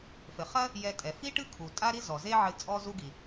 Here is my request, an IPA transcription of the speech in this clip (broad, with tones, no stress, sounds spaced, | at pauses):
f ɘ˩ χ ɐ˥ | j ɛ˧ tʼ ɛ˩ f i˥ ʈ ɨ˥ kʰ u˩ tʼ a˥ ɾ i˥ z ɔ˩ z e˥ ʕ ɨ˧ t͡sʼ ɔ˥ z u˥ ɡ i˩